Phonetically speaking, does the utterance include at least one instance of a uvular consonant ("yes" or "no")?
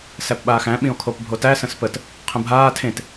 yes